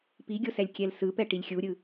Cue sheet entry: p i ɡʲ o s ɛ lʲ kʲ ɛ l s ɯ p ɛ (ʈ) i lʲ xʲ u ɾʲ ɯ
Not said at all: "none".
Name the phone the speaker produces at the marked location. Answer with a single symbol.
ʈ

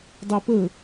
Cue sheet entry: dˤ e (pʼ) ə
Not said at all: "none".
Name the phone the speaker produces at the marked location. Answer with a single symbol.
p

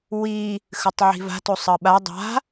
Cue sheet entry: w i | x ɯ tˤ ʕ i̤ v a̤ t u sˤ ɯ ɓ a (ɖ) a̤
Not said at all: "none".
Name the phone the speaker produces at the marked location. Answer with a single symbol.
dˤ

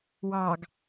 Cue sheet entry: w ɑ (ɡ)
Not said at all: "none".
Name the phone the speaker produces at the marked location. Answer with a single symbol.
ɡ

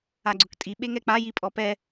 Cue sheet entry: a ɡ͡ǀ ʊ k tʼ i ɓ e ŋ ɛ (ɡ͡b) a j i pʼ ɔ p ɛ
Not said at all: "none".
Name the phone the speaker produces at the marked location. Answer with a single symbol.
k͡p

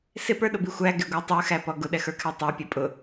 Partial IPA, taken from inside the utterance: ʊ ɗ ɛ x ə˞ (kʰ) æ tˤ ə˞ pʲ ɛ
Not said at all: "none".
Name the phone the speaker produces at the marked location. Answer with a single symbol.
kʰ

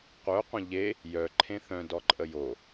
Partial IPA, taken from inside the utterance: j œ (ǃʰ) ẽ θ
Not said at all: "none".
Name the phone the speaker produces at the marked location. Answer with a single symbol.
ǃʰ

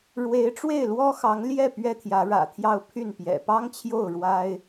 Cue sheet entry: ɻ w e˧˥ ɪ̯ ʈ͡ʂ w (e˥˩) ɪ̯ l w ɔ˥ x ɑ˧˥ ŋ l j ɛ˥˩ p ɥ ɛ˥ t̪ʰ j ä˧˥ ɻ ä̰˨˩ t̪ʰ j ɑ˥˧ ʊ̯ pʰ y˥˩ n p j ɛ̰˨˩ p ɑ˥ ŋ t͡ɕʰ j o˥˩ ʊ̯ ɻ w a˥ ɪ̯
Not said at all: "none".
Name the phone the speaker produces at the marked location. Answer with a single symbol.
e˥˩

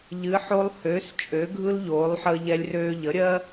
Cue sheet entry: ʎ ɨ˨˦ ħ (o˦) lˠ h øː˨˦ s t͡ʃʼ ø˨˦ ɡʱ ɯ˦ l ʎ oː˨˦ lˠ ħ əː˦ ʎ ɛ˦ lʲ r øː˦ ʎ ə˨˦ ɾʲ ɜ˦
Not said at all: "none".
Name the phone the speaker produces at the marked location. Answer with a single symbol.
o˦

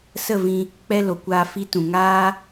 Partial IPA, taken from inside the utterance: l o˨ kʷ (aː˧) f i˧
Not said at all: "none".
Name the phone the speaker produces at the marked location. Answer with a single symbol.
aː˧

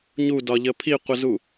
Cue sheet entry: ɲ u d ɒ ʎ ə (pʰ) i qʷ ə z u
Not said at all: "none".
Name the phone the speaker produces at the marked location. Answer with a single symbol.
pʰ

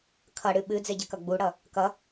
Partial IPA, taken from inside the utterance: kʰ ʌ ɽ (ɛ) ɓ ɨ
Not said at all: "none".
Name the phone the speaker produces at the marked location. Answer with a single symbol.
ɨ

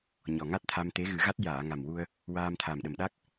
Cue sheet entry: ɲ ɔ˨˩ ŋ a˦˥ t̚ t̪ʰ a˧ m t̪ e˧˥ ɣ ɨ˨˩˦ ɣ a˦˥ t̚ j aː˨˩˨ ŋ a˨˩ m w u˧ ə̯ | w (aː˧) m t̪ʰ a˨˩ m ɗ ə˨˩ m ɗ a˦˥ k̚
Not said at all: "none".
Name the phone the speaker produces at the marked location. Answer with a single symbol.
aː˧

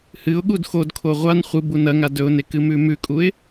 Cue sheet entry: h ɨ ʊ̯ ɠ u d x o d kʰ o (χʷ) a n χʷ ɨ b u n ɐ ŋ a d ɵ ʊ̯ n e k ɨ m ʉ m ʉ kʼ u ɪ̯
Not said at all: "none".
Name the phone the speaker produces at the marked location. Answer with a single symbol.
ʁʷ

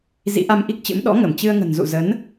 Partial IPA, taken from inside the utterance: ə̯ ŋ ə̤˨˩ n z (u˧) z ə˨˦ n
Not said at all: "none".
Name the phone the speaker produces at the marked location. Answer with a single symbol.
ṵ˧˨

